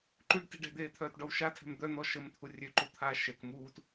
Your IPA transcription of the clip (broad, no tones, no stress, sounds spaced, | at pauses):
ǃ y ɖ t i̤ ɖ ɛ̤ d̪ eː t̪ʰ œː t ɖ ɔ w ʃ a tʰ ɛ̤ m d̪ œ n̪ ɔ ʃ ə m t̪ʰ u rʲ ø ǃ u t̪ʰ aː ʃ ɛ k m uː t